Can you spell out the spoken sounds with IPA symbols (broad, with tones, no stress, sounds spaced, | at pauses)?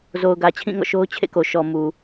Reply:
z o˨ ʊ̯ ɡ ä˨ t͡ɕʰ ĩ˦˨ ŋ ɔ̰˦˨ ʃ o˦ ʊ̯ t͡ɕʰ ḛ˦˨ k o˨ ʃ ɔ˨ m u˨